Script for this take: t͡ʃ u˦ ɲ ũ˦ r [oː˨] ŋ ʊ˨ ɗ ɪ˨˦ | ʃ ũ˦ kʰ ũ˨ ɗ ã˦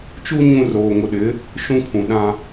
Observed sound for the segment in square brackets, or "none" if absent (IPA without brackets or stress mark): oː˨